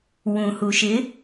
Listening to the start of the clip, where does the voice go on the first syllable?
low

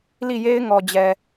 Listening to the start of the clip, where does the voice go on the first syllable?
falling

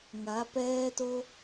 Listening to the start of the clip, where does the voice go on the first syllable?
rising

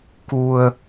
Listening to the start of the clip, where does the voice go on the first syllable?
low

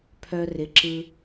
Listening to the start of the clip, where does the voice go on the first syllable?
low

